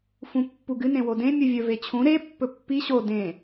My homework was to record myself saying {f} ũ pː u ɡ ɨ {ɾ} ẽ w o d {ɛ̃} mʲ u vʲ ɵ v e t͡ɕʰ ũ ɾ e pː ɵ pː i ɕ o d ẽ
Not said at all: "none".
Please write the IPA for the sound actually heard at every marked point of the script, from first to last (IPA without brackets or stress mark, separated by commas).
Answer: f, n, ẽ